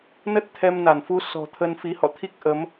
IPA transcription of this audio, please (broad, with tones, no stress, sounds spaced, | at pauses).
n ə˦˥ t̚ t̪ʰ ɛ˧ m n a˧˩ n f u˨˦ s ɔ̤˨˩ t̪ʰ ə˧ n f i˨˦ h ɔ̰˧˨ t̪ʰ i˦˥ k̚ ʔ ə˨˦ m